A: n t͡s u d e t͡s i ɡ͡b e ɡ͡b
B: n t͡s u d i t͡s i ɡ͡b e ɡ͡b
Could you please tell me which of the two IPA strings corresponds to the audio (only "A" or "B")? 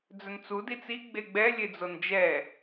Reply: B